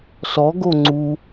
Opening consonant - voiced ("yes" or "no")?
no